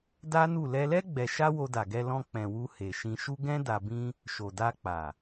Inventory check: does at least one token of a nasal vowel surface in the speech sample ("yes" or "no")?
yes